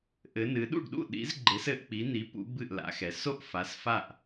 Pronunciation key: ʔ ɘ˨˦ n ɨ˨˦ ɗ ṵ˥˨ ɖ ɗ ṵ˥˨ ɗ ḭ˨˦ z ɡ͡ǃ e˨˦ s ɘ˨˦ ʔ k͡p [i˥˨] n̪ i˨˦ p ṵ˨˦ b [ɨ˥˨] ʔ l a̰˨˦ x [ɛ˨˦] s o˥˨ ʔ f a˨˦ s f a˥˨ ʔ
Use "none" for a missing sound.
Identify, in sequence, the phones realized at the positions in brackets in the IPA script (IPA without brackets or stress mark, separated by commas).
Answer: i˨˦, ɨ˥˨, ɛ˨˦